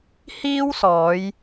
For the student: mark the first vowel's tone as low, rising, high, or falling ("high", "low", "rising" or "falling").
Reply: high